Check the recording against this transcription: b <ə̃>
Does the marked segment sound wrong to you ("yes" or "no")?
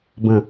no